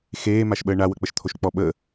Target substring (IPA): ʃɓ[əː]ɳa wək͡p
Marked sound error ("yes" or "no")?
no